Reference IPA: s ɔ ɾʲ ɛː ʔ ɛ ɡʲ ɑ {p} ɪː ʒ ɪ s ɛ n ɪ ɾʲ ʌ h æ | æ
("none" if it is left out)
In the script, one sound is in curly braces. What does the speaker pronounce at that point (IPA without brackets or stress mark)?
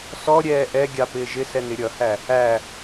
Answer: p